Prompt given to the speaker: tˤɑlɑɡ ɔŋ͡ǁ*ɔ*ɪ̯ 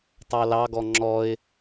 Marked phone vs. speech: correct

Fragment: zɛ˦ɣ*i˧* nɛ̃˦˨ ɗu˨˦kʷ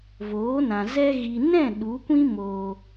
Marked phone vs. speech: correct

